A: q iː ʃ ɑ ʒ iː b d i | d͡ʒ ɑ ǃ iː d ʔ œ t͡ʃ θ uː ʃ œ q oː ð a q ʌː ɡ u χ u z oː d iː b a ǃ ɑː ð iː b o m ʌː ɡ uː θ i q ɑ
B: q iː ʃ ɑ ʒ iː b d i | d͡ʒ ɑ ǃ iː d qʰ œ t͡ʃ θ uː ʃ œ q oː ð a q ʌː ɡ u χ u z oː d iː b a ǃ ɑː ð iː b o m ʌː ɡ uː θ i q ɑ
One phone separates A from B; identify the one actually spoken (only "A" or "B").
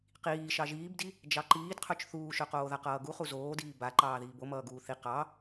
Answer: B